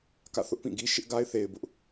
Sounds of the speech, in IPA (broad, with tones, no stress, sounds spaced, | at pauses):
k ä̰˦˨ θ ʊ˦ ʔ p ĩ˦˨ ɡ i˦ ʃ ɪ˦ ʔ ɡ a˦ ɪ̯ θ e˨ ɪ̯ b ʊ˦ ʔ